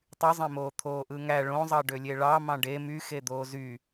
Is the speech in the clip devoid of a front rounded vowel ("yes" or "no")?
no